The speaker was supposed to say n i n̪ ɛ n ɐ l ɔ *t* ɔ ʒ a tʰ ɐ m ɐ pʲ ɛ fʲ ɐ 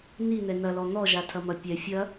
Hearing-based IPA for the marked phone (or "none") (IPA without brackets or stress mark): n̪